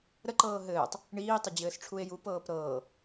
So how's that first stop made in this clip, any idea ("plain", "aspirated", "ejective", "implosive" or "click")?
click